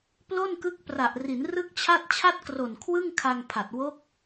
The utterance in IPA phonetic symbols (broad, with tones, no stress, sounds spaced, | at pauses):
p l o˥˩ n k ɯ˦˥ k̚ p r a˨˩ ʔ r i˩˦ n r ɯ˥˩ k̚ t͡ɕʰ a˥˩ t̚ t͡ɕʰ a˥˩ t̚ k r o˨˩ n kʰ w ɯ˥˩ ŋ kʰ a˧ ŋ pʰ a˨˩ t̚ w o˦˥ k̚